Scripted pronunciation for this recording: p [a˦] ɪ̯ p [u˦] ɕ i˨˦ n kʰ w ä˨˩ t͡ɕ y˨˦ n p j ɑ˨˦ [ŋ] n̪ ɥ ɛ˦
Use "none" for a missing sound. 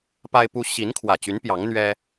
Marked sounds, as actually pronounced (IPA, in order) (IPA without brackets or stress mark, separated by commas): a˦, u˦, ŋ